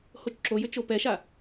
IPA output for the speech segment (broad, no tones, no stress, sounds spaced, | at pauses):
h o t͡ʃ ǁ o j ʏ t͡ʃ o p ɛ ʃ a